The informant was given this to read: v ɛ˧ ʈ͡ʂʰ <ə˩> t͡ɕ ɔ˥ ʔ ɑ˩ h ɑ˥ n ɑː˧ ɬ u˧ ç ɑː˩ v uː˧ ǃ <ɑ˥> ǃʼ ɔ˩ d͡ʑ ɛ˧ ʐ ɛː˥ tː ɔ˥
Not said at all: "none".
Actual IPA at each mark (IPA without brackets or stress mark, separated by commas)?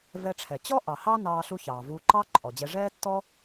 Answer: ɛ˩, ɑ˥